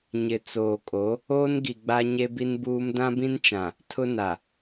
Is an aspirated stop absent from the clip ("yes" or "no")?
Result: no